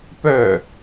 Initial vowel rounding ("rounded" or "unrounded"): rounded